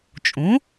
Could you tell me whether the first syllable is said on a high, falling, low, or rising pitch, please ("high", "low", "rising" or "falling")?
rising